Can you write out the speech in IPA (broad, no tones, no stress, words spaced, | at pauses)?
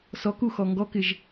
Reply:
sɔkuxɔ ŋɡɔkɪʒ